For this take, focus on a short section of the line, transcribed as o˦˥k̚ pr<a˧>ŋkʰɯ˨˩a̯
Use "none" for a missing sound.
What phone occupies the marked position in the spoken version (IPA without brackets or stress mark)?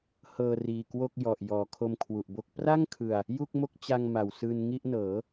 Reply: a˥˩